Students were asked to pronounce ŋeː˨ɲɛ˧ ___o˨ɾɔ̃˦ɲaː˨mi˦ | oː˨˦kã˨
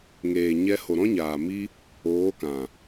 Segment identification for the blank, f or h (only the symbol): h